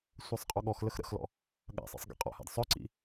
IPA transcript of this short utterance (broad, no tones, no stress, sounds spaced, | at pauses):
sʷ ɜ sˤ qʼ ɔ ɠ ɔ x l ə x ɾ ə̰ x l ɔ̰ | ɠ a̰ sˤ ḭ sˤ ɡ ḭ qʼ ɔ̰ h a̰ d sˤ œ ǀ ḭ